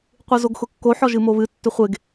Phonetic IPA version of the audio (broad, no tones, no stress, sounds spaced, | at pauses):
qʷ ɨ z o ɡ x ʊ kː o ħ ɔ ʒ ɨ m o β ɨ tː ʏ χʷ e ɡ